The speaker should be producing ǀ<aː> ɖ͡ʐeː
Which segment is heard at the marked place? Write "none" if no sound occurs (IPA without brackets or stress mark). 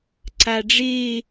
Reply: a